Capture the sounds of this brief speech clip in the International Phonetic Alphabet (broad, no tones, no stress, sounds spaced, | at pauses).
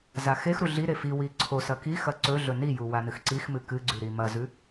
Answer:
z a x e x ɾ u ɮ i ɾ e f i w i ǀʰ o s ɐ k i x ɐ ǀ ɵ ɮ ɵ n i j u w a n ɨ x ǀ i x m ɨ k ɨ ɡ͡ǀ ʉ ɾ i m ɐ z ʉ